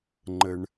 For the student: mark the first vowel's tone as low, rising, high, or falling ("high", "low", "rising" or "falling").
low